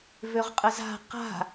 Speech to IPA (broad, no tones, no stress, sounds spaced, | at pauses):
v ø ʁ qʼ ə z a̤ q a̤